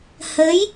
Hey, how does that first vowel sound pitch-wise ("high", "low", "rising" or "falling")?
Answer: rising